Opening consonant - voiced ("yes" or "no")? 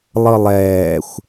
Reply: yes